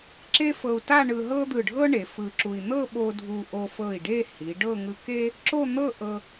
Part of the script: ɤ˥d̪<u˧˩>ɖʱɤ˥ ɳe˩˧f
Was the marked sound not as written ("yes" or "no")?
yes